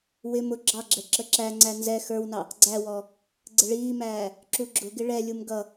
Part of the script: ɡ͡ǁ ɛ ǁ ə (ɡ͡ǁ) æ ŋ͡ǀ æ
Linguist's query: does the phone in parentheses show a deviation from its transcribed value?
yes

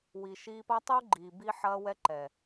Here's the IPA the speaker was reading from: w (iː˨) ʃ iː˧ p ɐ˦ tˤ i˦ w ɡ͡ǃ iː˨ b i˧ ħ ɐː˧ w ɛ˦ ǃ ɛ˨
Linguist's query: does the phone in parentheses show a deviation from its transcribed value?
yes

